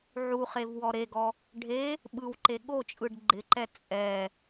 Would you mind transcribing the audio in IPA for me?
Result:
ʕ u χ e v w ɔ ɾ e ɡ ɔ | ɖʱ e | ɓ ɯ w ǃ e ɠ o t͡ʃʼ ɯ ɖ ɡ͡ǃ ɪ ǃ ɛ t͡sʼ ɛ

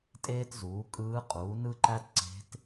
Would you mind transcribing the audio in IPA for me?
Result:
tʼ eː˥ t z uː˩˥ kʼ ɯː˧˥ qʼ uː˩˥ n ɯ˥ ǃ æ˥ t ǀ e̤˧˥ t

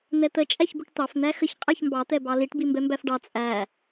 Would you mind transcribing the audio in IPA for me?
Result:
n̪ ɛ t̪ ə t͡ʃʼ æ ç b ʊ ʈ t̪ ɑ f n̪ æ x ə ç qʼ æ ç m b ɑ t̪ ɛ b ɑ l i ʈ b i m b ɛ m b æ f ɖ ɑ t͡sʼ æ

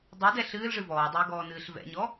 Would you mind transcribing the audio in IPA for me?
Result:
dˤ ɨ d ɛ ɬ ɨː l ʐ ɨ v ɔː dˤ ɨː ɡ ɔː n ɨː ɬ v ɛ̰ ɲ ɔ

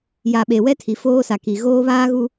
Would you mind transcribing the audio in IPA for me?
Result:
j a˨ ɓ e˨ w ɛ˦ tʰ i˨ f oː˦ s a˨ k i˨ ɣ oː˦ β aː˦ ɣ u˦

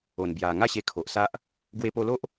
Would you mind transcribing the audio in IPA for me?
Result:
o˨˩ n b j a˨˩ ŋ a˥˧ ɕ e˧ kʰ o˨ ʔ s a˦ ʔ | ɡ w e˧ p o˧ l o˦ ʔ

